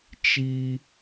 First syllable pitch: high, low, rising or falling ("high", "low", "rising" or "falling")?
high